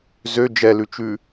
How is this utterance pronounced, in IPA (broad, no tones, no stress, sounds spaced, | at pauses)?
z ø d͡ʒ ɛ l ʉ t͡ʃ ʉ